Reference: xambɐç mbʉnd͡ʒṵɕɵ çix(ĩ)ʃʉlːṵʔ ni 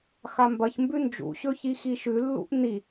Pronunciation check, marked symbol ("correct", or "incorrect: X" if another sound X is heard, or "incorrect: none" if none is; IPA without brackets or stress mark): incorrect: i